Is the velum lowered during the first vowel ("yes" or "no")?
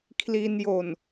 no